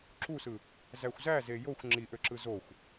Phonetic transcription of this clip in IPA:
ǁ u s ɯ | z æ xʷ z æ z e j o xʷ ŋ͡ǁ i ʔ ø ǁ ɯ z o xʷ

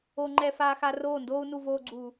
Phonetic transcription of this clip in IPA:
o˧ ŋ͡ǃ ɛ˧ f aː˧ x a˧ r oː˦˨ n d oː˦ u̯ n u˧ v oː˧ ɡ͡ǀ u˨

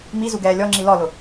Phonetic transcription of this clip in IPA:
m i z u ɡ ɛː lʲ ɔ ŋ͡ǁ i l ɔ l ʊ

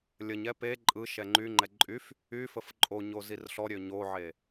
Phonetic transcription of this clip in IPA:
lʲ ə ɲ ɛ p e ǃʼ ɯ ʃ ɛ ŋ͡ǃ y ŋ͡ǃ ɛ ǃʼ y f | y f ə f ǃʼ o ɲ o z i r ɬ ɔ ɾʲ ø ɲ o ʕ e

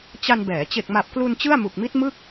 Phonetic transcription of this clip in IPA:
t͡ɕ a˧ n b ɛː˩˦ t͡ɕ e˨˩ k̚ m a˨˩ p̚ k l u˧ n t͡ɕ ɯ˥˩ a̯ m u˨˩ k̚ m i˦˥ t̚ m ɯ˥˩ k̚

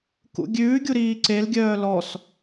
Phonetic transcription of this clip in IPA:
k ṵ ɡʲ ʉː ɡʲ u ɾ iː ǀ e l ɡʲ œː l ɔ s

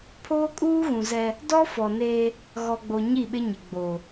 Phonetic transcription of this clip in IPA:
pʰ oː˦ kʼ uː˦ ɣ ũ˨ z ɛ˦ | d ɔ˦ f ɔ˨ n eː˦ | ɣ ɔ˨ ɡ͡b o˨ ɲ i˦˨ ɓ ɪ˦ ɲ ɪ˨ ɡ͡b o˨

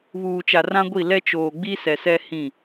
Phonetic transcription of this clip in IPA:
β uː˨ t͡ʃ a˨ r ã˦ ɡʷ i˦˨ l ɛ˦ t͡ʃ oː˨ ɡ͡b i˦ s ɛ˨ s ɛ˦ h ĩ˦˨

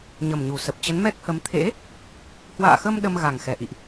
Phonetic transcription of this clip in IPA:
ɲ ə˨˩ m ɲ u˧˩ s ə˨˩ p̚ t͡ɕ ə˨˦ n m ɛ˦˥ k̚ h ə˨˦ m t̪ʰ ḛ˧˥ | h w a̰ː˧˨ x ə˧ m ɗ ə˧ m ɣ a˨˩ ŋ x ɛ˧˩ ʔ ḭ˧˨ ʔ

